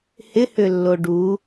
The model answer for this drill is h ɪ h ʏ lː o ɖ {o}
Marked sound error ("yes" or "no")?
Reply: yes